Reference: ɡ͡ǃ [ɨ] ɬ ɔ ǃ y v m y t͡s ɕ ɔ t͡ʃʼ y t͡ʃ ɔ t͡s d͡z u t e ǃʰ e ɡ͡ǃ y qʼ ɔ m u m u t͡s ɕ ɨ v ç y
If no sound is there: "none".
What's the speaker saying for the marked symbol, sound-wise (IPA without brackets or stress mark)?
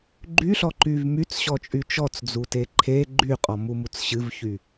y